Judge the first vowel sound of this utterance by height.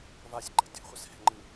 low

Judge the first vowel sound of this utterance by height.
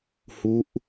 high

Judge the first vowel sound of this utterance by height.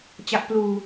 low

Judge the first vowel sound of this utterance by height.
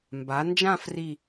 low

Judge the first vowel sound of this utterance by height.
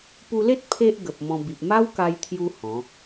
high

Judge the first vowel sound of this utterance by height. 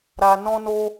low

